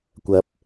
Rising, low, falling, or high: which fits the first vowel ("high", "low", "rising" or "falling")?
rising